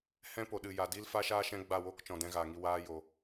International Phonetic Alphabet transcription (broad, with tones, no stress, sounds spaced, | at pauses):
h ɛ̃˦ p o˨ ɗ ɨ˨ j a˨ d i˦ l f a˦ ʃ aː˦ ʃ ɛ̃˦ ɡ͡b a˦˨ w o˦ k t͡ʃ ɔ̃˨ d ɛ̃˧ ɣ aː˨ ŋ i˧ w aː˦ j o˧